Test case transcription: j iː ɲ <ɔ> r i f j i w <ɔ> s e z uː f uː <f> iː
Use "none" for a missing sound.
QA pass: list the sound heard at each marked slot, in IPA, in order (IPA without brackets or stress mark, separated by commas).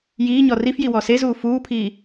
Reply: ɔ, ɔ, pʰ